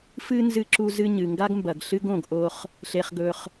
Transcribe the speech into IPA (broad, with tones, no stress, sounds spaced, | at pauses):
f ɨ˥ n z ɨ˦ ǁ u˦ z ɨ˦ ɲ ɨ˨ ŋ ɡ a˥ ɡ m b ɐ˨ ɡ ɬ ɨ˥ ɡ õ˨ ɡ ʔ o˦ χ | ɬ e˨ χ ɡ ɵ˨ χ